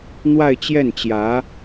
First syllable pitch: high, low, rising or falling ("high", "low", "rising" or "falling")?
falling